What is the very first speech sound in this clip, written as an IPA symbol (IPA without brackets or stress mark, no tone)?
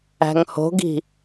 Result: æ̤